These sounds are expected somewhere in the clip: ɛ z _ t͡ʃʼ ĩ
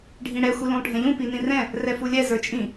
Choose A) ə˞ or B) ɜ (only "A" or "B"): A